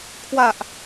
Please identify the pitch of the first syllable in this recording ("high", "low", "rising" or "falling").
low